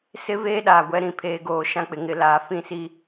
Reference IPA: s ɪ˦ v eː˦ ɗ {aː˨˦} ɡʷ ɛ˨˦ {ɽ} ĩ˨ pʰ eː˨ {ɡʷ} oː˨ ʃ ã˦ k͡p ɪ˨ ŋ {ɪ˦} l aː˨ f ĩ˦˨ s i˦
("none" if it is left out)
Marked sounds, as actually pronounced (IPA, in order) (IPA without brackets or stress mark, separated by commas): aː˨, ɾ, ɡ, ɪ˨